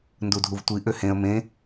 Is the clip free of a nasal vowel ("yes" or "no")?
no